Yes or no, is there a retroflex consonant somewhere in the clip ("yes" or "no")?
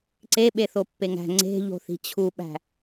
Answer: no